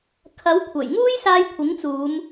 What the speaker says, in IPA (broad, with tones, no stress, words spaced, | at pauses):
kʰɐ˨˥wkʷʰɐ˨˩jŋuː˥j saː˧jkʷʰɪ˨˥ŋt͡suː˨˧m